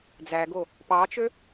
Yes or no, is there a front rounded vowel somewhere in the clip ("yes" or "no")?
yes